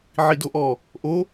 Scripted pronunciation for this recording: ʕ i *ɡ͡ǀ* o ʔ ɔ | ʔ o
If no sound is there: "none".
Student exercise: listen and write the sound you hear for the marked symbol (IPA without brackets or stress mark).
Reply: d